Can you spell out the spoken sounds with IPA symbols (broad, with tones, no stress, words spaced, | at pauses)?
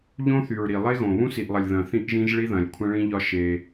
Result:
ʎõ˦θy˨ɹɾi˨ lˠe˦ɣõ˨ βũ˦si˨ʔlˠɐ˨lʲ ðɐ̃˨ θĩ˦ʔʒĩ˦ʒ ɭi˦ðɐ̃˨lʲ kʷʰɐ̃˦ɭĩ˦ʎɒ˦ ʃe˦